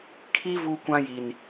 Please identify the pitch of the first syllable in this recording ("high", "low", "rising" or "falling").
high